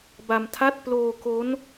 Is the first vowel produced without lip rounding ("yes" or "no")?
yes